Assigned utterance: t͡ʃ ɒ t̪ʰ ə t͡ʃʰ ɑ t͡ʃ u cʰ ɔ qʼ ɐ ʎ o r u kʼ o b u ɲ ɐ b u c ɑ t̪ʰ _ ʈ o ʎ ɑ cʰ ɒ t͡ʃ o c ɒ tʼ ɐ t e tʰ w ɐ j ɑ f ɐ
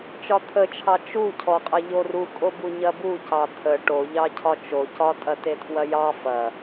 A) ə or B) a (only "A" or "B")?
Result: A